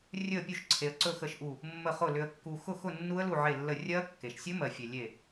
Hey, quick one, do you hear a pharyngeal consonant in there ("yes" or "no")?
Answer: yes